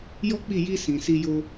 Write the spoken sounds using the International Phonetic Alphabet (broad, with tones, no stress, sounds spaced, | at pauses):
j ɔ˦ k͡p i˦˨ j i˧ s ĩ˨ s i˧ j o˧